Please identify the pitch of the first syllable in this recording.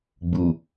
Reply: low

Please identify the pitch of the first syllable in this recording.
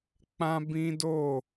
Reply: high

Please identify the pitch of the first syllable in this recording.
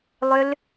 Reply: high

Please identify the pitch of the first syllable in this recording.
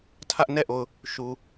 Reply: high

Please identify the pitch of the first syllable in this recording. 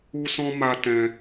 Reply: high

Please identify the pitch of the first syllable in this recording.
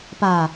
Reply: low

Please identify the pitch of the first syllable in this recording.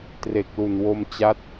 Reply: low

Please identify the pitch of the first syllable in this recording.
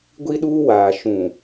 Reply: high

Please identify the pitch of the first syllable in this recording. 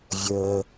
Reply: low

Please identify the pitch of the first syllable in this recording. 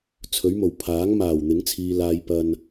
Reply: rising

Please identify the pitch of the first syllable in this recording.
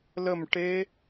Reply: falling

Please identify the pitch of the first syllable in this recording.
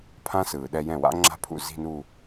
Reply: high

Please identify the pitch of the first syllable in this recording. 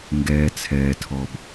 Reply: low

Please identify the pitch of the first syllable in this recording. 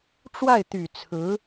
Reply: falling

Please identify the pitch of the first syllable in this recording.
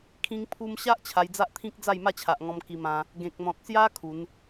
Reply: high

